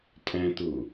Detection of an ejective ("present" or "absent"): present